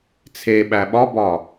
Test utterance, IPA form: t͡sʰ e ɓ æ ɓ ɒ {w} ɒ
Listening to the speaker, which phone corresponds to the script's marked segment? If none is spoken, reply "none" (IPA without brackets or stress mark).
b